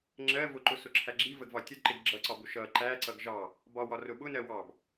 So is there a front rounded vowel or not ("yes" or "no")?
no